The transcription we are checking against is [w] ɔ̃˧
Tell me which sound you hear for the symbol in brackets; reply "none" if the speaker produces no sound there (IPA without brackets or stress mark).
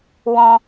w